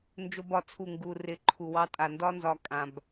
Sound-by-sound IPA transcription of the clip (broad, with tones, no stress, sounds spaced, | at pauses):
n d͡ʒ o˦ b ɒ˦˨ t͡sʰ u˦˨ ŋ ɡ u˧ r ɪ˧ ǃʰ u˨ w ɑ˧ tʼ a˨ n d ɒ˦ n z ɒ˧ kʼ ã˨ b